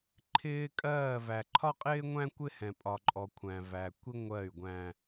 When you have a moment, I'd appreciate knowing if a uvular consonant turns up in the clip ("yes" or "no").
yes